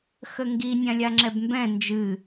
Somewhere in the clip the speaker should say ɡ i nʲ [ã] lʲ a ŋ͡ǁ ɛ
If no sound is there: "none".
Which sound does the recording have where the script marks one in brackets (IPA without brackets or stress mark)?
ã